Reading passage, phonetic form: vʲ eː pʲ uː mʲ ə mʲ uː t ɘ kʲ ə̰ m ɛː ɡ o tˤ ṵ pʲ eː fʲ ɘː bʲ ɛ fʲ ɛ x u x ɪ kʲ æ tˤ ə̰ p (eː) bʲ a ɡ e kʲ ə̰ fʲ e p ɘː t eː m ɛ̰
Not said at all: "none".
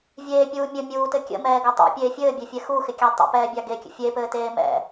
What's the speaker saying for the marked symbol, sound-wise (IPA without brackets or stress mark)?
ɛː